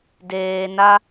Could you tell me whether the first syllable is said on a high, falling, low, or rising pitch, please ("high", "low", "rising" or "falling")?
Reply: low